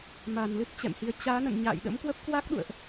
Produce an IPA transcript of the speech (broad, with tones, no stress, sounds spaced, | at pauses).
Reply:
m aː˧˩ n l ɨ˦˥ t̚ t͡ɕ ɛ̰˧˨ m h i˨˦ ə̯ t͡ɕ aː˨˦ n ə̰˧˨ n ɲ a̰ː˧˨ j ɗ ə̰˧˥ m k w ə˦˥ p̚ k w a˦˥ k̚ ɗ ṵ˧˨ ə̯ ʔ